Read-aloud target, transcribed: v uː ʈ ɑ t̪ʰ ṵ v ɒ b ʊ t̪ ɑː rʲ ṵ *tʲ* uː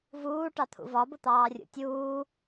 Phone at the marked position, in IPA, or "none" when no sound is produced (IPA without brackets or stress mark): tʲ